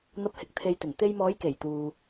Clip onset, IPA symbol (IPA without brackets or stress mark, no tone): n̪